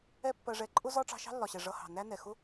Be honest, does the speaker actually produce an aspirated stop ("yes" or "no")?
no